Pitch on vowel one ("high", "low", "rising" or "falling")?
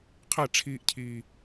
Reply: falling